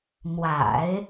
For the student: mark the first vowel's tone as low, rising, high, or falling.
low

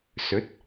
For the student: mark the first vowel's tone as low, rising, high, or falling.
rising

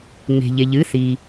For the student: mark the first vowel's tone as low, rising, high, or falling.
low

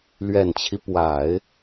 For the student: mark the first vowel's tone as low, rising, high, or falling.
low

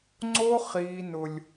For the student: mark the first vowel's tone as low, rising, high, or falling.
high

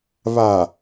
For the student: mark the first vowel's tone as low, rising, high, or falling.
low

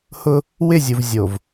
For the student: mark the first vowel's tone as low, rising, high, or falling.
high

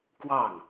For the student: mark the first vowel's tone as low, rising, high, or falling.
falling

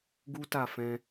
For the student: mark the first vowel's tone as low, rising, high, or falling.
high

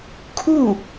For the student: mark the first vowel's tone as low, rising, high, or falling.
falling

